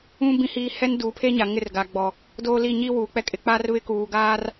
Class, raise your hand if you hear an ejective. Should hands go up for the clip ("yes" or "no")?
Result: yes